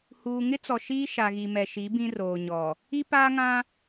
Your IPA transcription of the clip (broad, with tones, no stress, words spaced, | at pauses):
huː˨ŋɪ˦t͡sɔ˨ ʃiː˦ʃa˨ɣi˨ mɛ˨ʃi˨˦ bĩ˦roː˨ɲɔ˨ | i˦paː˦ŋã˦